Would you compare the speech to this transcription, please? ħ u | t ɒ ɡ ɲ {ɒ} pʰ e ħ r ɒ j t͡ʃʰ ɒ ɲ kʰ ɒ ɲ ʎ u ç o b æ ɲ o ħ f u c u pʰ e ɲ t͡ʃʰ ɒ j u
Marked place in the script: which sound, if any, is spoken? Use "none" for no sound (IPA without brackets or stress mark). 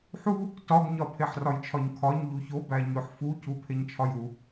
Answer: ɒ